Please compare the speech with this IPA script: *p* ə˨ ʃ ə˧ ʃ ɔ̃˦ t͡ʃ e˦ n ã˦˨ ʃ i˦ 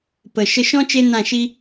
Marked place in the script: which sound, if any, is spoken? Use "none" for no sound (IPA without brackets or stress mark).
p